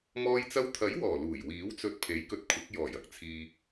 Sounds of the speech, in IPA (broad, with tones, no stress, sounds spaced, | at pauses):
m ɔː˧ j t͡s ɐ˧ w t̪ʰ ɐ˨˥ j w ɔː˨˩ l uː˨˩ j w iː˨˥ w t͡s ɵ˧ t̚ pʰ e˨˥ j k ɵ˧ t̚ kʷʰ ɐ˨˥ k̚ j ɔː˨˩ j ɐ˥ k̚ t͡sʰ iː˨